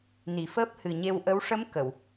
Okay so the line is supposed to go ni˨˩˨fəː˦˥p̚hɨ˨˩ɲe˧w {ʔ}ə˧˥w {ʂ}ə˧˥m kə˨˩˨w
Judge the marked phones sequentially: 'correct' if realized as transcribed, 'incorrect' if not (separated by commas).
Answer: correct, correct